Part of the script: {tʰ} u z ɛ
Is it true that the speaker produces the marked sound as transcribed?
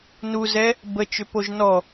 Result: no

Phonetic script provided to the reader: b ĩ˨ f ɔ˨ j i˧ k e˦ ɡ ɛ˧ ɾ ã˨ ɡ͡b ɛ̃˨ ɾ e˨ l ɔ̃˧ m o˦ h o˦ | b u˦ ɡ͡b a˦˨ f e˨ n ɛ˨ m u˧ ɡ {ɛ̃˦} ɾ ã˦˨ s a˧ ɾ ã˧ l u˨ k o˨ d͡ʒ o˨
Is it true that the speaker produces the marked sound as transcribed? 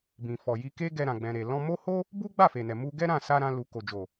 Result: no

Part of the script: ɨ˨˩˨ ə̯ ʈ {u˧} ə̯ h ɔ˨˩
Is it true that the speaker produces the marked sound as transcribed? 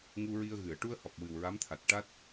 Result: yes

